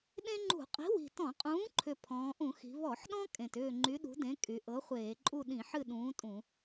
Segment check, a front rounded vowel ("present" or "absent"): present